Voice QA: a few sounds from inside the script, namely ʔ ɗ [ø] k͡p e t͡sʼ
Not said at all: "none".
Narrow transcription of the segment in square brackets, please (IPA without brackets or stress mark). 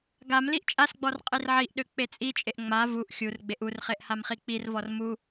ø